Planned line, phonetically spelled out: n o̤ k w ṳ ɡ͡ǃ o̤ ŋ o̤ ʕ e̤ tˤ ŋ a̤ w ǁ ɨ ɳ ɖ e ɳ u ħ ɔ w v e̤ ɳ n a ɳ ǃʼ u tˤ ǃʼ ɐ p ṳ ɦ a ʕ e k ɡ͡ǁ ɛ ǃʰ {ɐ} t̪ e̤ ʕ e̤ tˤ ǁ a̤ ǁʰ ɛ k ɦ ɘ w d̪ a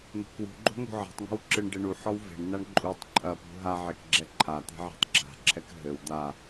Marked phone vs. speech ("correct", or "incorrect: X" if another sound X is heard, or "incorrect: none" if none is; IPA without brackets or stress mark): incorrect: a